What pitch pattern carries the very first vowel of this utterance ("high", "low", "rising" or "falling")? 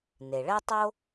low